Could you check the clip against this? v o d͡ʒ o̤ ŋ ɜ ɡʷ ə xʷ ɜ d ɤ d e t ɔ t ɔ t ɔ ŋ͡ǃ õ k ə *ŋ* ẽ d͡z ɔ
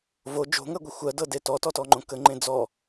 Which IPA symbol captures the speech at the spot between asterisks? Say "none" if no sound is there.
ŋ͡ǃ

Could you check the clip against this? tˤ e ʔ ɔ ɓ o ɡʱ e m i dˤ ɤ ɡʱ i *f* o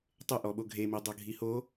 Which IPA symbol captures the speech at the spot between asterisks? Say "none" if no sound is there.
h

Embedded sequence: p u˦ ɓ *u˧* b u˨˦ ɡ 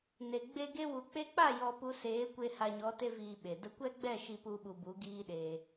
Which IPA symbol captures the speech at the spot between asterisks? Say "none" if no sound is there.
u˧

